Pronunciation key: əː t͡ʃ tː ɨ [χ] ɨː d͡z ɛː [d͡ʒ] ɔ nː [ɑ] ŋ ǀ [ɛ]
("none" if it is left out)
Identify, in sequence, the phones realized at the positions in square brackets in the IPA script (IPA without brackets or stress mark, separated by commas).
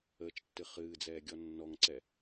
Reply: χ, ɡʲ, ɔ, ɛ